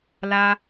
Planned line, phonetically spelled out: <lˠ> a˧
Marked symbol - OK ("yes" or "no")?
no